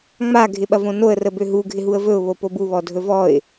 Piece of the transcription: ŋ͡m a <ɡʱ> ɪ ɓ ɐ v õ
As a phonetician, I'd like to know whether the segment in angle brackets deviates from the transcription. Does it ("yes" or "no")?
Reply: no